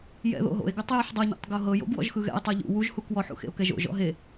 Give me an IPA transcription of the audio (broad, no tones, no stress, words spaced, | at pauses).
jɛ̰ðo̰ɦo̰e̯ɡutˤ juħdˤɤɲo̰tˤ ɡoɦɤjo̰ɡ wɔ̰ʒxɯɣɛ̰e̯ tˤɤʎṵ wuʒhuk wɔħṵxḛo̯ kɛʒo̰ ʒɔ̰ɦe